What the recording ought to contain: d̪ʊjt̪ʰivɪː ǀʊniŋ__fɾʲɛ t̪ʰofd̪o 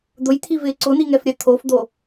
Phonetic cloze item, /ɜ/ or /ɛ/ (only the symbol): ɛ